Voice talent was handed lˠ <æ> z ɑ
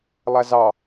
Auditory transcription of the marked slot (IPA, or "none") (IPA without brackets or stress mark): æ